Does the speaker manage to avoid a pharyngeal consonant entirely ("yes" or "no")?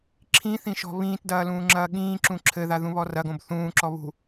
yes